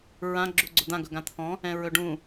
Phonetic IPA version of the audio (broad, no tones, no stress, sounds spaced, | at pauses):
ɹ ã ɡ͡ǁ u ɡ͡ǀ ʊ d̪ ã ɡ ɵ ɡ ã t̪ʰ ɔ̃ | ɛ̃ ɹ ɵ ɖ ũ